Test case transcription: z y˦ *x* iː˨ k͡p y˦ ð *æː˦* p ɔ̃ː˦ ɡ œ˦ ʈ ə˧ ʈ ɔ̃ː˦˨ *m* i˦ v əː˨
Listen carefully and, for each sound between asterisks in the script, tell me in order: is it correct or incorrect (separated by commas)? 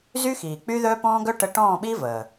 correct, incorrect, incorrect